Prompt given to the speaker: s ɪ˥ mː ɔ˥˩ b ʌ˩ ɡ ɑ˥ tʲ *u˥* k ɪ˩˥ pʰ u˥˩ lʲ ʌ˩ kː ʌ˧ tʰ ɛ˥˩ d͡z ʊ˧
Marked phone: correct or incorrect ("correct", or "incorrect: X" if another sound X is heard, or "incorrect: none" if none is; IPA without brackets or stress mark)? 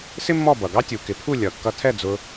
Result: incorrect: u˩